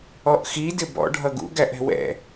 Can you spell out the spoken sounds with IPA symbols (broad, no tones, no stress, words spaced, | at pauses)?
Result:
ɔʔxi dɪbɔ̰ ɖʱʌɡṵ ɡæʔɛ̤wɛ̰